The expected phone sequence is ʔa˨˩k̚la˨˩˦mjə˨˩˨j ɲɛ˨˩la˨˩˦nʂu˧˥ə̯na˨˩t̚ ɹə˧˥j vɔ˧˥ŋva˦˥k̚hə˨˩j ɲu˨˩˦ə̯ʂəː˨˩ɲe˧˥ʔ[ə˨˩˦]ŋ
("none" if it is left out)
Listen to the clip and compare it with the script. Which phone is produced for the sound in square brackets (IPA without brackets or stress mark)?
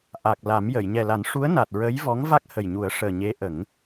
ə˨˩˦